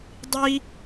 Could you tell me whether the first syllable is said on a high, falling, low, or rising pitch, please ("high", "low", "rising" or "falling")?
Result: high